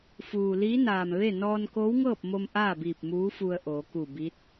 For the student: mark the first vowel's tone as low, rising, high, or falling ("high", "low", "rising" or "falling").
low